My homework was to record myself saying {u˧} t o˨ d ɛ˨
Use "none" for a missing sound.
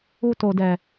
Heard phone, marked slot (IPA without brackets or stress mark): u˧